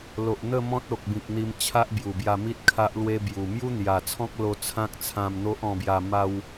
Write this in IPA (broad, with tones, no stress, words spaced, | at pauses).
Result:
lo˨ʔn̪ə˥˧ mɔ̃˦t̚ o˨k̚bĩ˨k̚n̪i˧m t͡ɕʰa˦ʔbju˨˩bja˧mi˦t̚ kʰa˦ʔlwe˦bju˨˩ mju˦n̪ja˨˩t͡sʰɔ̃˦k̚ lo˧t͡sʰã˦k̚t͡sʰã˧mn̪o˦ʔ ɔ̃˧bja˧ ma˧w